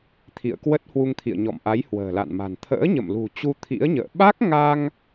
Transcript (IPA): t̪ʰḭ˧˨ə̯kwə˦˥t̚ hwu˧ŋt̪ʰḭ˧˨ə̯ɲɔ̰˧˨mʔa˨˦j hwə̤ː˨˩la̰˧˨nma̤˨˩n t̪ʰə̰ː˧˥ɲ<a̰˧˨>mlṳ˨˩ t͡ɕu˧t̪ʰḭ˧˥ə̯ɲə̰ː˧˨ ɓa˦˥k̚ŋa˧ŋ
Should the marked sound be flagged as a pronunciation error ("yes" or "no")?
yes